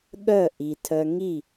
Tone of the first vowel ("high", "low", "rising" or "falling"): falling